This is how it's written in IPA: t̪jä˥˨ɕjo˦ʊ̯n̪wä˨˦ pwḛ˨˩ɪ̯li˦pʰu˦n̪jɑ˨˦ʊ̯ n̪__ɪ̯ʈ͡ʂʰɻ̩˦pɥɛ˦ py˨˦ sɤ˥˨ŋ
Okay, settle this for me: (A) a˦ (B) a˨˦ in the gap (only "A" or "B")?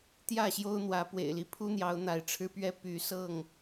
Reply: B